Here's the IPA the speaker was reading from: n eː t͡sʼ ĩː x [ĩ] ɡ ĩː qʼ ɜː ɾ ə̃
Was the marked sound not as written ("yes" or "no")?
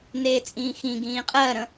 no